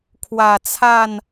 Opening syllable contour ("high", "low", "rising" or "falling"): low